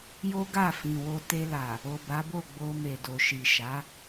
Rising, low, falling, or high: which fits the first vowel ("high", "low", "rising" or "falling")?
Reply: high